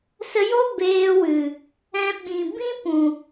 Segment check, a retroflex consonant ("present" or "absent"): absent